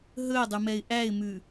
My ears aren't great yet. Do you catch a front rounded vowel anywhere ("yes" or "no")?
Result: no